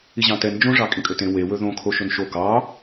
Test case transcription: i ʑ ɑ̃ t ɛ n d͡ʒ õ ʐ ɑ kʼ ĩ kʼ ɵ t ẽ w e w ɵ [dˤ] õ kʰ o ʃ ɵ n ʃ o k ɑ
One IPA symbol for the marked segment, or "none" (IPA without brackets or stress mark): ð